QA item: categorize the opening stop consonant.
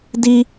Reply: plain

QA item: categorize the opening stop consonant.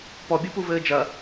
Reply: plain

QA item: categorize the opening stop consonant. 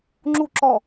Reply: click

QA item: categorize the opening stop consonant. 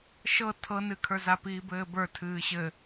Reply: aspirated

